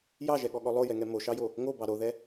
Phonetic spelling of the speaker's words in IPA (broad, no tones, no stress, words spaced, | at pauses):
jɑʒɛɠɔɠɔ lˠojɛŋɛ moʃɑjo | ŋobɑ ɾoðɛ